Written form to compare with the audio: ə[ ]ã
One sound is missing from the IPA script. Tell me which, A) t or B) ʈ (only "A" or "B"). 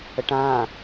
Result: B